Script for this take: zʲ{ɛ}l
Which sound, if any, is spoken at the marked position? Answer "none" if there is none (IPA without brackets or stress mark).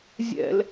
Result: ɛ̰